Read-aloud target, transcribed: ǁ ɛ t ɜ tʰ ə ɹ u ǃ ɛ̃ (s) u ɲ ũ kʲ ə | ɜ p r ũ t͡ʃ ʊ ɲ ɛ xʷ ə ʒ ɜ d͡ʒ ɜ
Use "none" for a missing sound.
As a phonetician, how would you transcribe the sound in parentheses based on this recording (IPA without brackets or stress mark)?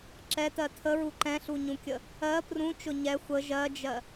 ɬ